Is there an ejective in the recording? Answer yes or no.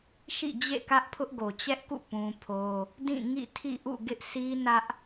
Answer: no